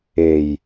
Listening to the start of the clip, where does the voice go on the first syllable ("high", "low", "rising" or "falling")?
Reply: low